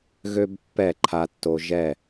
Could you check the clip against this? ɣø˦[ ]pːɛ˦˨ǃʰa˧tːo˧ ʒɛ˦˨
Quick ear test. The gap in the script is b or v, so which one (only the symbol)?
b